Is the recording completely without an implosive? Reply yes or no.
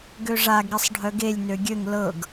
yes